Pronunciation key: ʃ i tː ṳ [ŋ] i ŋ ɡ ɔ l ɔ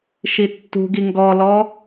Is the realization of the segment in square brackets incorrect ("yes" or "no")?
yes